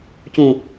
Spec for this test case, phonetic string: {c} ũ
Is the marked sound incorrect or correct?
correct